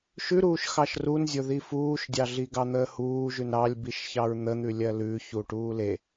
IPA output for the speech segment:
ʃ ʉ ɾ uː ʃ x ɑ ʃ r u n zʲ o ð i f uː ʃ dʲ ɑ ɮ i ɡ ɑ n̪ əː h uː ʒ ʉ n ɾ ɑ lʲ b i ʃ ç ɑ ɹ n̪ ə n̪ ʉ lʲ ɜ l ʉ ç u ʈ uː l e

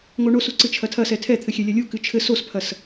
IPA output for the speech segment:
ŋ o ɳ o s u ǀ ɨ t͡ʃʰ ɐ tʰ ɐ s ɛ tʰ ɛ t̪ʰ ɘ xʲ ɛ lʲ ɐ lʲ u k ɨ t͡ʃʰ ɘ s o s pʰ ɐ s

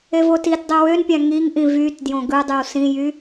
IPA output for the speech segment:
e v o t i t dˤ i w ø n pʲ æ̃ ŋ i ŋ ʔ ĩ v y t d j õ ɡ ɯ dˤ y w s ĩ j y

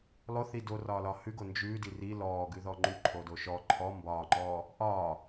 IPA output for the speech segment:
lˠ o θ i d o r ɒː l ɒ h ʉ ɡ o n d͡ʒ ʉː d i r i l ɔː ɡ ʉ ð ɔ ŋ͡ǃ ʉ ǃʰ o d o ʃ ɔ ǃʰ ɔ m b ɒː ŋ͡ǃ ɔː | ʔ ɒː

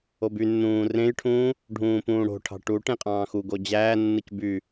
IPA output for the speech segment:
o b y nː ũː r ẽ j ʈʰ ũː | ɖʱ ũː p ũː ɽ o̤ ʈʰ ɑ̤ ʈ u ʈ ẽ qʼ ɑ̃ː x u ɡ o d͡ʑ æː nː ɯ c b y

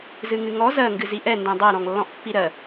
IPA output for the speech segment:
z ɨ ŋ ɨ ŋ ɔ z ɜ ŋ ɡ ɨ z i ʔ ɛ n d ɛ̃ dˤ ɜ ɾ ɔ̃ ŋ lː ɔ̃ ʔ pː i ɾ ɜ

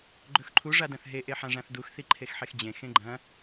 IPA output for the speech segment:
ɡ͡ǃ ɵ x ǃʰ u ʐ a d ɐ̃ θ ɦ e ʔ e ħ ã ʐ ã θ d u x θ i ǃʰ e x ħ e x d͡ʑ ẽ x ẽ ɡ͡ǃ ɐ̃

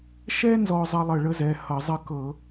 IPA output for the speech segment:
ʃ ɛ˥ n z ɔ˥ zˤ ʌ˥ lˠ ə˦˨ ɭ ə˥ z ɛ˩˧˩ h ʌ˧˩˧ zˤ ə˦˨ k ɤ˧˩˧

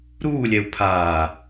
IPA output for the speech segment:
ɾ uː lʲ ɛ u̯ pʰ aː

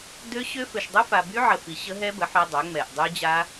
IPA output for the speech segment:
d ø˦˥ ɕ ø˦˥ f ø˨ ʃ dˤ u˦˥ f a˨ b y˦˥ ʕ ə˨ f i˨ ɕ ə˦˥ ɦ ɛ˦˥ b ə˩˥ ħ œ˦˥ dˤ œ˩˥ ŋ͡m ɛ˨ ʔ dˤ y˦˥ d͡ʑ a˦˥

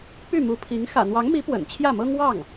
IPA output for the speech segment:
p y˥˩ m u˧˥ pʰ i˧˥ ŋ x ä̰˨˩ n̪ w ɑ˧˥ ŋ m i˧˥ p w ə̰˨˩ n t͡ɕʰ j ä˥˩ m ɤ˥ ŋ w ɑ˥˩ ŋ

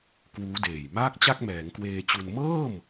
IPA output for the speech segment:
k w uː˦˥ d eː˨˩ j m aː˥˩ k̚ t͡ɕ a˥˩ k̚ m ɛː˩˦ ŋ k w eː˧ t͡ɕ u˧ n m ɤː˥˩ m

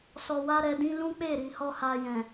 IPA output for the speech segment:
s ɔ˨ w a˧ ɾ ɛ˨ d ĩ˧ l ũ˦ k͡p e˦˨ ɾ i˨ h ɔ˧ h a˨ j ɛ̃˨

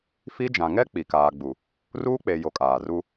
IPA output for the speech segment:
f i˦ d͡ʒ ã˨ ŋ ɛ˦ k͡p i˨ k aː˨ ɡ͡b u˨ | r uː˦ k͡p e˨ j o˨ kʼ aː˨ r u˦

